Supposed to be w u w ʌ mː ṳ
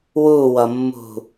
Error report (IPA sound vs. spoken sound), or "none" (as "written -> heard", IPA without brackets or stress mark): none